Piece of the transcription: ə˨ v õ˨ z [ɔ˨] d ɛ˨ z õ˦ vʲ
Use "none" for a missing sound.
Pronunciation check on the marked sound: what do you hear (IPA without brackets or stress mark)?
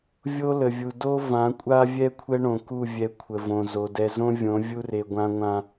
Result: o˨